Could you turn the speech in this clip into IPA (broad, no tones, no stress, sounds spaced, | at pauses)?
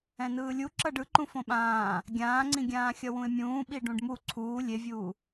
ɛ̃ n ɯː lʲ u ǁ ʌ ɖ ɯ ǃ ũ f õ ɓ ãː | ɡʲ ãː ŋ͡ǀ ĩ ɡʲ ãː xʲ ʌ w ũ ɪ̯ mʲ ũː ɓ i ɖ ũ ɖ m u ǀʰ uː lʲ e vʲ uː